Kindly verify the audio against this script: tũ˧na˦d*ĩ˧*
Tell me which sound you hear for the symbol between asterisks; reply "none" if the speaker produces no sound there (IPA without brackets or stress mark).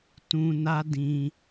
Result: ĩ˧